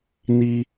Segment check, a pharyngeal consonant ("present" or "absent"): absent